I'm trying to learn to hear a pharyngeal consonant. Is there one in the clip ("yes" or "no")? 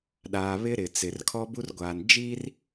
no